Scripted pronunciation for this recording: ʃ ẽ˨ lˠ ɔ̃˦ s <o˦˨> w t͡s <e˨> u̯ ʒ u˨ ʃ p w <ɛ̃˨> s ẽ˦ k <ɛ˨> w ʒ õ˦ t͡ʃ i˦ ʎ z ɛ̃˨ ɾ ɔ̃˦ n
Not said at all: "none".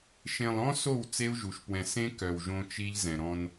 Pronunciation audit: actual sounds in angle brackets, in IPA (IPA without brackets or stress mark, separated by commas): o˦˨, e˦, ɛ̃˨, œ˨